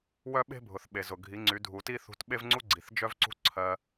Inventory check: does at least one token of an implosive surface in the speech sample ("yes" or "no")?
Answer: yes